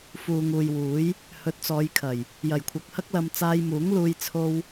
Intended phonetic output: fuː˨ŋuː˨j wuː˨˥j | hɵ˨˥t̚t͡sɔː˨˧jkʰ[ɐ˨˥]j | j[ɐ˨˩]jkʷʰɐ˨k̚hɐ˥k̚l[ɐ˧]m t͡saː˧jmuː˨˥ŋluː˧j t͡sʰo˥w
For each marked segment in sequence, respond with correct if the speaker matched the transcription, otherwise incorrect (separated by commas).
incorrect, correct, correct